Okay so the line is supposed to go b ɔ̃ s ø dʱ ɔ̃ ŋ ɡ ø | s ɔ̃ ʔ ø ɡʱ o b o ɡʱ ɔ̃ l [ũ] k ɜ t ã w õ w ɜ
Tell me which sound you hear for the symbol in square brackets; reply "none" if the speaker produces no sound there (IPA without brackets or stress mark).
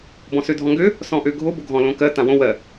õ